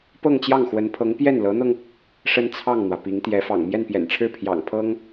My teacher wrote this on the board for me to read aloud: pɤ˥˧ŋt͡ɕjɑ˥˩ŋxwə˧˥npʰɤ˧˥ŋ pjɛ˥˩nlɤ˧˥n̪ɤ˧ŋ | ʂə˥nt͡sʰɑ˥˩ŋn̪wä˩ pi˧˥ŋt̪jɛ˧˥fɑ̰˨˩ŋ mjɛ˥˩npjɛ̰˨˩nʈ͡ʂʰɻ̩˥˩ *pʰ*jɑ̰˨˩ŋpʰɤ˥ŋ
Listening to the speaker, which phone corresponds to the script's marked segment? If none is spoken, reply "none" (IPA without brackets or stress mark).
pʰ